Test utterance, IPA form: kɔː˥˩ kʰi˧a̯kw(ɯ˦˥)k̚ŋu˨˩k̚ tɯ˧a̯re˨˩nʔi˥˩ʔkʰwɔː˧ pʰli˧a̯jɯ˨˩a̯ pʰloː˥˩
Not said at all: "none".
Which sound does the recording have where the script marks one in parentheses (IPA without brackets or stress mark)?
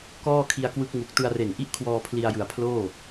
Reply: ɯ˦˥